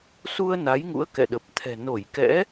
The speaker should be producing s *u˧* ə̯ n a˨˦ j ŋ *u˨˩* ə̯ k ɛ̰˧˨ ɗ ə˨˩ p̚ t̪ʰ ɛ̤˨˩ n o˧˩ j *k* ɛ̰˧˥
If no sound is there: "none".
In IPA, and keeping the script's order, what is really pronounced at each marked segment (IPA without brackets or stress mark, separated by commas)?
u˧, ṵ˧˥, k